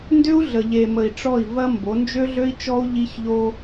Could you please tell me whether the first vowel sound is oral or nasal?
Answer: oral